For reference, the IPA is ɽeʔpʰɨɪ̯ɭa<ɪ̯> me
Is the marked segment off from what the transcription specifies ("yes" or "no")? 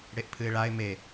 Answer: no